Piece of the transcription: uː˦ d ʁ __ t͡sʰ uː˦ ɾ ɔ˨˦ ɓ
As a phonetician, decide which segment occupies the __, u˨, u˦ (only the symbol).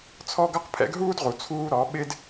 u˨